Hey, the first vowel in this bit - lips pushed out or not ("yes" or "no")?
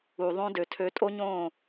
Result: yes